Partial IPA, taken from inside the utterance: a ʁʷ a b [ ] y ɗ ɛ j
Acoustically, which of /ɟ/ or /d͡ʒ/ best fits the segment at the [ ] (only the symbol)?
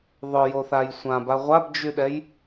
d͡ʒ